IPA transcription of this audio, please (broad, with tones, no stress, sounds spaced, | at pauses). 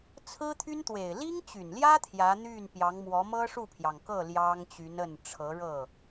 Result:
t͡sʰ ɹ̩˥ t̪ʰ y˥ n t̪ w e˨˩ ɪ̯ l i˥ ŋ t͡ɕ y˨˩ n l j ä˥ t̪ʰ j ä˧˥ n̪ y˥˩ n p j ɑ˧˥ ŋ m w ɔ˧˥ m ɤ˥ ʂ u˥˩ pʰ j ɑ˩ ŋ k ɤ˥˩ l j ɑ˥ ŋ t͡ɕ y˧˥ n ə˥˩ n ʈ͡ʂʰ ɤ˧˥ ɻ ɤ˥˩